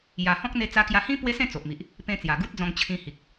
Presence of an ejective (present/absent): absent